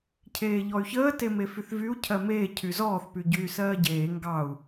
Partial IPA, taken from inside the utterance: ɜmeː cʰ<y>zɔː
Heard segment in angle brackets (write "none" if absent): y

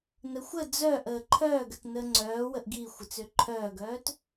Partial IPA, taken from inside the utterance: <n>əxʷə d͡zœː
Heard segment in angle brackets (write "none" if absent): n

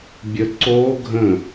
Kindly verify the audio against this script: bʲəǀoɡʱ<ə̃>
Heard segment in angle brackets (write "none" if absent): ə̃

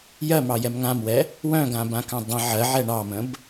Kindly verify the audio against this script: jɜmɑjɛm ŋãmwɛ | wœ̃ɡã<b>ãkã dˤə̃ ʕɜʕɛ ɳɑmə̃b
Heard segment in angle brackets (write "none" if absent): b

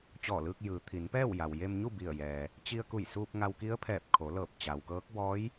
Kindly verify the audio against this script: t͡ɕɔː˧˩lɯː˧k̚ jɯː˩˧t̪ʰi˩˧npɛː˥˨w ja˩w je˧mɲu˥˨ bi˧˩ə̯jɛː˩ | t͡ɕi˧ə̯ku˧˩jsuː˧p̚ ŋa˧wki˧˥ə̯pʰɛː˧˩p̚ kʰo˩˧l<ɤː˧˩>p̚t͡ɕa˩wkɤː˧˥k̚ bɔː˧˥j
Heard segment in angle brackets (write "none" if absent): ɤː˧˩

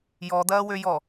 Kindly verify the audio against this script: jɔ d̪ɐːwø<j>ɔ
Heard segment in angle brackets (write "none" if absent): j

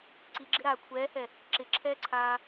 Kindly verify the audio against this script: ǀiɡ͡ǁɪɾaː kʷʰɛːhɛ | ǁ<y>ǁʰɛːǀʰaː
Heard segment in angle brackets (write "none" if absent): ɪ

